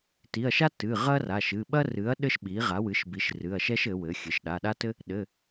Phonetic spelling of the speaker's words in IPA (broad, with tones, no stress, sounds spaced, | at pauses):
t i˩˧˩ ɐ̯ ʃ a˥ t ɨ˩˧˩ ʁ ɐ˥ r a˩˧˩ ʃ ɨ˩˧˩ ɓ ɐ˥ r ɨ˩˥ ɐ̯ ɗ ɘ˥ ʃ ɓ i˩˥ ʁ a˩˥ w ɨ˩˥ ʃ b i˩˥ ʃ r ɨ˩˧˩ ɐ̯ ʃ ɛ˥ ʃ ɘ˩˥ w ɘ˩˥ xʲ ɘ˩˥ ʃ ɗ a˩˧˩ ɗ a˥ t ɘ˥ | ɗ ɘ˩˧˩